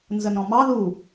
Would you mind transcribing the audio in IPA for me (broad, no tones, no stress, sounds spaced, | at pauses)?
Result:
n z ə n ɔ̃ m ɑ ð u